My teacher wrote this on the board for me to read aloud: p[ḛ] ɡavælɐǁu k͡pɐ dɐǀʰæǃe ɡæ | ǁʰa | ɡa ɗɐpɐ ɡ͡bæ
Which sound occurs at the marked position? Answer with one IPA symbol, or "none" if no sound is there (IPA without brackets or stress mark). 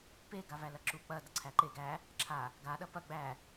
e